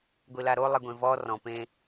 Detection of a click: absent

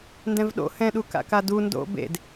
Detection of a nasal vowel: present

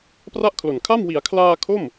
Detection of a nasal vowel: absent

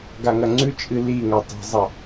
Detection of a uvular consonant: absent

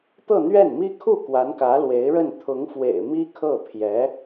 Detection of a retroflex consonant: present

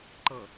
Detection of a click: present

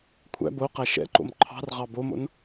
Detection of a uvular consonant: present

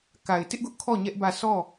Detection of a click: absent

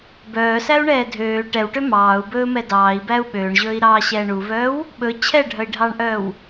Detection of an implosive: present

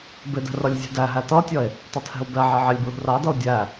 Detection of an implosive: absent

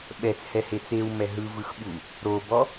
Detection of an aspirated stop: absent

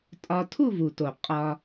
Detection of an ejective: present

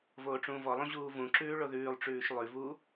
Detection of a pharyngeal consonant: absent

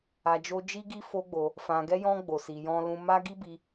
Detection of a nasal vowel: present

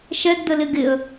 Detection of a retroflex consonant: absent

